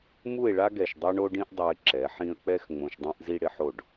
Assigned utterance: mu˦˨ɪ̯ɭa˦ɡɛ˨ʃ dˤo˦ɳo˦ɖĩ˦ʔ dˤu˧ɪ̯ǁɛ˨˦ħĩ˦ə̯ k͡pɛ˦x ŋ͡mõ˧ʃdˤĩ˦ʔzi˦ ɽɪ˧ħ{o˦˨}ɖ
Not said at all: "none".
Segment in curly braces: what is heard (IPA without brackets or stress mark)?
o˦˨